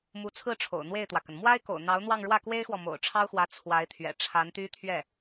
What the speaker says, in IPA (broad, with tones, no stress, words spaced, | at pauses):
mu˧˥t͡sʰɹ̩˥˩ ʈ͡ʂʰo̰˨˩ʊ̯n̪we˥˩ɪ̯t̪wä˩kə˩n mwa˥ɪ̯ko̰˨˩ʊ̯ n̪ɑ˧˥ʊ̯n̪wɑ˥˧ŋ ɻwä˥˩kwe˥ɪ̯xwɔ˨ mo̰˨˩ʊ̯ʈ͡ʂʰɑ˥ʊ̯xwä˧˥ t͡sʰwa˧˥ɪ̯ t̪ʰɥɛ̰˨˩ʈ͡ʂʰa˧˥nt̪y˥ t̪ʰɥɛ˥˩